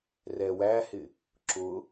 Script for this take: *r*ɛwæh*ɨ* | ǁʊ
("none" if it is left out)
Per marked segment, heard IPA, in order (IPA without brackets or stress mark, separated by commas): r, ɪ